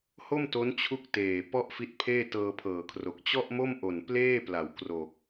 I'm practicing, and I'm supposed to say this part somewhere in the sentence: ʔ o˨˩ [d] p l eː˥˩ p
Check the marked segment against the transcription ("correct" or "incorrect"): incorrect